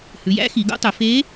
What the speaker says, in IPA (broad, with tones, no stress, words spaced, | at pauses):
hʉ˩˧jæ̰˧˥ xi˩˧ɡo̰˧˥tˤɵ˩˧ fe˧˥